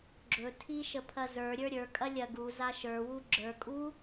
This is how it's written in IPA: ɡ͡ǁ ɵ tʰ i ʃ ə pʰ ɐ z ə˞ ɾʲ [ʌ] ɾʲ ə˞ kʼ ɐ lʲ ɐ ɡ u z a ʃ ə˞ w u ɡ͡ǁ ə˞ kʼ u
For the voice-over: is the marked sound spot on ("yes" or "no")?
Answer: no